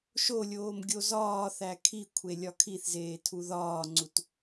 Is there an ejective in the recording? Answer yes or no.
no